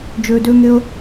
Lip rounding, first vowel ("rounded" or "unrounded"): rounded